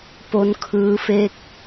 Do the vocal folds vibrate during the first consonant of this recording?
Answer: no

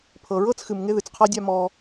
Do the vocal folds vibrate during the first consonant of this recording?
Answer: no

